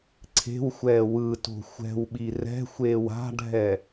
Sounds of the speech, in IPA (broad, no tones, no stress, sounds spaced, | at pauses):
ǀʰ e̤ w xʷ ɛː w ɯ t o̤ xʷ ɛ̤ w ɓ i r ɛ̤ xʷ eː w a̤ ɖʱ ɛ